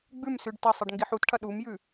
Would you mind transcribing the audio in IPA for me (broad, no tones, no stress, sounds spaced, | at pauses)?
ɡ͡b ʉ m s ʉ ɖ t ɐ sˤ ɨ ɖ ŋ ɡ i ħ u t ʈʰ ɐ ɗ u m j ʉ